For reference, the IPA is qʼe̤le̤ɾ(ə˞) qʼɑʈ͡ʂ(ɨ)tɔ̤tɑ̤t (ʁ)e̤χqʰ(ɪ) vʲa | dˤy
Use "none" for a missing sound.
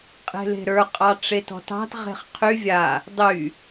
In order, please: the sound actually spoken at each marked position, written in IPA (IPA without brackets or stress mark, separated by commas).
ə˞, e, ʁ, y